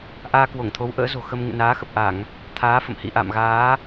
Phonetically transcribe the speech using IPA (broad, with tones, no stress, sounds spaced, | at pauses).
ʔ aː˧ k w o˧˩ ŋ t̪ʰ o˨˦ w ʔ ə̰ː˧˥ z o̤˨˩ x ə˧ m ŋ ɨ̰˧˨ n aː˨˦ x ə˨˩ p̚ ʔ a˧˩˨ ŋ | t̪ʰ aː˨˦ f ə̰˧˨ m h ḭ˧˨ ʔ a̰˧˨ m ɣ aː˨˦